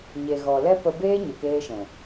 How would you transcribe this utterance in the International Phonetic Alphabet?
ɲ e˨ ɣ ɔ˨ l ɛ˦ p ə˧ b eː˦ ɲ ə˨ k eː˧ ʃ ɛ̃˨

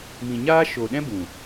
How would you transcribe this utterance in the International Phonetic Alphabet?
m ĩ˨ ɲ aː˦ ʃ oː˨ ɗ ɛ̃˦ b ũ˨

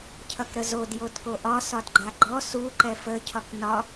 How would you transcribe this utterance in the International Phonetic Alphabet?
cʰ ʌ k ɾ ə z o d j o d k o ʔ ɒ s ɒ d ɡ͡ǃ a ɡ͡ǃ ɔ s u ǃ ɛ f ə cʰ ɒ k n ɒ

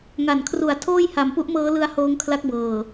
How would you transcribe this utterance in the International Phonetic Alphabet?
ŋ a˨˩ n kʰ r u˩˦ a̯ tʰ oː˥˩ j h a˩˦ m p u˦˥ ʔ m ɤː˦˥ l ɯ˦˥ a̯ h oː˦˥ ŋ kʰ l a˦˥ k̚ b ɤː˨˩

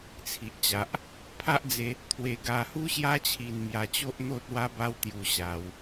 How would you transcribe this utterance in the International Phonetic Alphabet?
t͡sʰ i˨ ʔ t͡ɕ a˨ ʔ | pʰ a˦ ʔ d͡z e˧ | t̪ʰ w e˧ ɡ a˧ h u˦ ɕ j a˦ t͡ɕʰ i˧ n m j a˧ t͡ɕ o˦ ʔ n̪ o˦ t̚ w a˦ b a˦ w t̪ j u˧ ɕ a˧ w

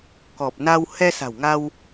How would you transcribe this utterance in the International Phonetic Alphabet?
k ɔ˨˩ p̚ n a˧ w h ɛ˧ s a̤˨˩ w ŋ a˧ w

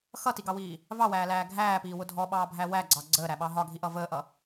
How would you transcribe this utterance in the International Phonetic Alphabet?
x ʌ t i ɡ ɑ w iː | v ɑ w æː l æː ɡʱ æː p iː w ʊ dʱ ɔ ɓ ɑː bʱ æ w æ ɡ͡ǀ ɑ ɡ͡ǀ əː ɾ æ ɓ ɑ ɦ ɒ ɡʱ i ʔ ʌ v əː ʔ ʌ

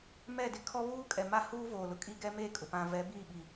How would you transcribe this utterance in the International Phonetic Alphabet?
m ɛ˦˨ d ɪ˦ kʰ ɔ˦ β uː˦ kʼ ɛ˨ m a˦ h uː˦ v oː˨ l ʊ˨ kʼ i˦ ɡ ɛ˦ m e˦˨ kʼ ʊ˨ p ã˨ v ɛ˨˦ b i˦˨ ɓ i˨

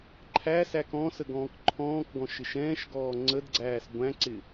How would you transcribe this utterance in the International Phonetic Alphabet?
ǃʰ æ s æ k ɔ̃ s ə ɡ ɔ̃ː k ǃʰ ɔ̃ː k ɡ ɔ̃ ʃ ɪ ʃ ɛ̃ː ʃ ɡ ɔː ŋ͡ǀ ə d ɡ͡ǀ æː s ɡʷ æ̃ ǀ ɪ

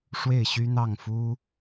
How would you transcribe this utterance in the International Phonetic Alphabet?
ʂ w e˥˩ ɪ̯ ɕ y˥ n̪ ɑ˥˩ ŋ f u˥

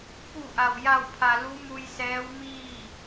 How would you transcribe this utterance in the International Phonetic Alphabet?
k u˧˩ ʔ a˩ w j a˧˩ w pʰ a˩ l u˧˥ m u˧ j s ɛː˧˥ w m iː˥˨

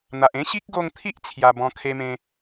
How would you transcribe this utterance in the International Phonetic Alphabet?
n̪ a˨ ʔ ẽ˦ ɕ i˦ k̚ ɡ o˧ ŋ t̪ʰ i˦ ʔ t͡sʰ j a˧ b ɔ̃˧ kʰ e˧ m ẽ˧

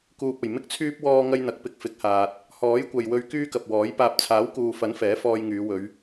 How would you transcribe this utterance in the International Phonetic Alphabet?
k uː˨ p̚ ɐ˨˩ j m ɪ˥ k̚ t͡sʰ yː˥ p̚ w ɔː˧ ŋ ɐ˧ j n̪ ɐ˨˥ k̚ p ɪ˧ k̚ f ɪ˨˥ k̚ h aː˨ t̚ | h ɔː˨˥ j kʷ ɐ˨ j w ɵ˧ ɥ k yː˥ k ɐ˨ p̚ w ɔː˨˥ j p aː˨ p̚ t͡sʰ aː˨˥ w k uː˨ f ɐ˨˥ n f ɛː˨˥ f ɔː˧ j ŋ yː˨˧ w ɵ˨˧ ɥ

